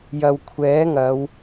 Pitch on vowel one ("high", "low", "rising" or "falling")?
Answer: low